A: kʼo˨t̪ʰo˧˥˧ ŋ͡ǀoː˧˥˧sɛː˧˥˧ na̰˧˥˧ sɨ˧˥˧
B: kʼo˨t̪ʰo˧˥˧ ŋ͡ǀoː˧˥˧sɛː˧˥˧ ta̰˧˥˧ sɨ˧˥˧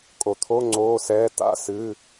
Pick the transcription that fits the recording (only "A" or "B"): B